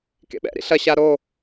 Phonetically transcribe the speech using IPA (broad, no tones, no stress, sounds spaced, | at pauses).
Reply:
k ḛ ɓ ɛ̰ ɾ ḭ ɬ ɐ ɕ a ɾ o